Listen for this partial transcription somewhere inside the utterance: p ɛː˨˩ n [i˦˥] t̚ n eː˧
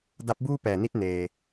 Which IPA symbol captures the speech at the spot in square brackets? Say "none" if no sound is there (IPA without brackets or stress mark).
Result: i˦˥